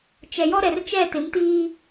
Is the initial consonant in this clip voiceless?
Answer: yes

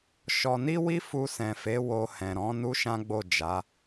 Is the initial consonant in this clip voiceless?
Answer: yes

